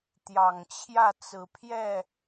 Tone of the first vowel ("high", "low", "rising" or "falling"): low